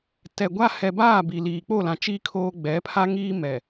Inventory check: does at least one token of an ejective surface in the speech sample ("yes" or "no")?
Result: no